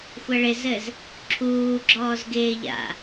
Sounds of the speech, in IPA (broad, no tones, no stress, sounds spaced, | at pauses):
xʷ ɐ ɭ ɪ z ɘ z | ǁʰ uː ɡ͡ǁ ɔː z ɡ ɪː ʎ a̰